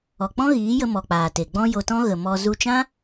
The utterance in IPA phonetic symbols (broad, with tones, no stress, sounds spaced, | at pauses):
ɔ˨ k͡p ɔ̃˦ ɣ iː˨˦ j ə˧ m ɔ˨ k͡p aː˨ t e˨ ɡ͡b ɔ̃˦ j o˧ t ɔ̃˦ ɣ ə˨ m ɔ˧ z u˧ t͡ʃ ã˦